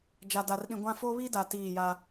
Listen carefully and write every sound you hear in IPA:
d͡ʒa˨da˨rɗĩ˨ɡʷã˦ fo˦βi˦da˨ tiː˦˨ja˦

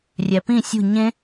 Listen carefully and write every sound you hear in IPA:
rʲæpĩ sʲṳ ɲẽ

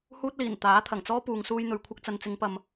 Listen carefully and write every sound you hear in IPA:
huː˥t̚liː˨˩n t̪aː˨˥t̪ʰɐ˨˩ŋt͡sɔː˥puː˨ŋ suː˧jn̪ɵ˨ɥkʷʰɐ˧k̚ t͡sɐ˨nt͡sɪ˨˧ŋpɐ˨m

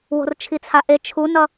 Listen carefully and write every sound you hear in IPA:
wo̤rt͡ʃʰit͡sʰaʔe t͡ʃʰunʌ

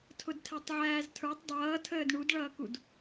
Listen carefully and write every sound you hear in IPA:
tʰʊdtʰɛtˤʕæːztʰə˞tˤ dˤʌːtʰəːd ɳudɭʌːkud

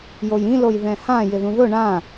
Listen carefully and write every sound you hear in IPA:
jojĩloj ðɛ̃hã jɪðũðʊ ɳã

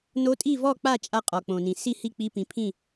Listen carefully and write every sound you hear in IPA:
no˧˥tʼi˥˨vɔ˥˨ k͡pa˥˨t͡ʃʼa˧ qʼɔ˩k͡põ˩nĩ˩ si˥˨ hi˥˨k͡pi˧˥pĩ˩˧˩pʰĩ˥˨

